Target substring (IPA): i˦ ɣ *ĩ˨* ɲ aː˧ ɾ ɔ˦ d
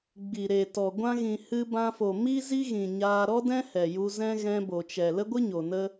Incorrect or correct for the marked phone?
correct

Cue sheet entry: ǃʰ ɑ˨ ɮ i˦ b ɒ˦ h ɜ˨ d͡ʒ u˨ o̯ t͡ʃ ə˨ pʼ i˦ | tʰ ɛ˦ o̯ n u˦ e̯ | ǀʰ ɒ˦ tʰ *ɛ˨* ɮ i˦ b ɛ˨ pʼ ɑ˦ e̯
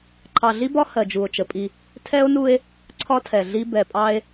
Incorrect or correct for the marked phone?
correct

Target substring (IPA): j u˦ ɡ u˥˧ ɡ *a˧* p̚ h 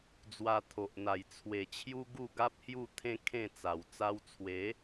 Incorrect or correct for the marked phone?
incorrect: a˦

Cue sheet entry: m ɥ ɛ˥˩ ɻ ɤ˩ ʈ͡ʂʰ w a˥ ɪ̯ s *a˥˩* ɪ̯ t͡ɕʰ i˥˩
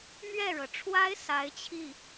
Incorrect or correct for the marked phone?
incorrect: a˧˥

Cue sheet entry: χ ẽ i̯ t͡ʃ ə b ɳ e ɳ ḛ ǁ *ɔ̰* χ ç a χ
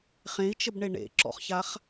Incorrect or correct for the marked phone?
correct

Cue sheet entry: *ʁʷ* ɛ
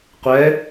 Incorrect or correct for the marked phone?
incorrect: qʷ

